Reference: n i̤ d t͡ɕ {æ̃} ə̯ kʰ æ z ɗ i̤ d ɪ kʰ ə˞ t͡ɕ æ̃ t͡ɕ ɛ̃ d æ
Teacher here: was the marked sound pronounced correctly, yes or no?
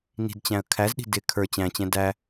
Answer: yes